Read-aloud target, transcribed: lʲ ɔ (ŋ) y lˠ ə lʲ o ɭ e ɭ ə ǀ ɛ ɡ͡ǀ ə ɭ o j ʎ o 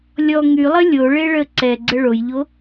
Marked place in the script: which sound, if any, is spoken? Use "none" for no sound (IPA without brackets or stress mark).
ŋ